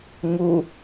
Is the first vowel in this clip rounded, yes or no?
yes